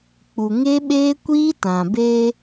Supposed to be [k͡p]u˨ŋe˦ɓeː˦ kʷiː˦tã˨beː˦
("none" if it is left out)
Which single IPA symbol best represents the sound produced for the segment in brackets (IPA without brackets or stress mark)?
k͡p